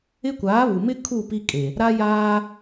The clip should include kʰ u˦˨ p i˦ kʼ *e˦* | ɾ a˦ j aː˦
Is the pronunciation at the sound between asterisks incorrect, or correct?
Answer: incorrect